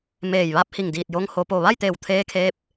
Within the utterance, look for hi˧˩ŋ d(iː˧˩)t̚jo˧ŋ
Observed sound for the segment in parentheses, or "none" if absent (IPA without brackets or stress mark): iː˧˩